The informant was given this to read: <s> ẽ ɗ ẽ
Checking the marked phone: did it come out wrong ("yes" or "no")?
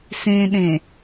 no